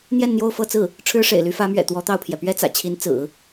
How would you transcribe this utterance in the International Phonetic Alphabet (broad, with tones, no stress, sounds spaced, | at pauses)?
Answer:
n̪ j ɛ˥˧ n n̪ j o˥˧ ʊ̯ f ɤ˥˧ t͡s ɹ̩˥˩ | ʈ͡ʂʰ ɻ̩˥ ʂ ḛ˨˩ ɪ̯ l y˧˥ f ä˧˥ m ɥ ɛ̰˨˩ t̪ w ɔ˧˥ t̪ ɑ˥˩ ʊ̯ pʰ j ɛ˩ p ɥ ɛ˥ t͡s ä̰˨˩ t͡ɕʰ i˧˥ n t͡s ɹ̩˨˩˦